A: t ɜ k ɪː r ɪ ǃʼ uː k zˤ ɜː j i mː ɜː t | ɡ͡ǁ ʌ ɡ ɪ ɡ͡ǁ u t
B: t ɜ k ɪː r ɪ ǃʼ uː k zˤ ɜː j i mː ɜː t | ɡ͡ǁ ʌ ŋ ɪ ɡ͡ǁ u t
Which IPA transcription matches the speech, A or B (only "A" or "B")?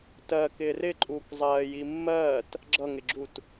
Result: B